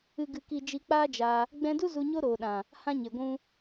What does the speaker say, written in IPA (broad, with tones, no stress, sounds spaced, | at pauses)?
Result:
ɨ˨ ɡ ɨ˨ k i˨ d͡ʒ i˧ k͡p aː˦ d͡ʒ a˧ | ɡ͡b ɛ̃˧ d u˦ z u˧ ɲ o˦ ɾ oː˨ ɗ ã˨ | h ã˦ ɲ e˨ ɡʷ ũ˦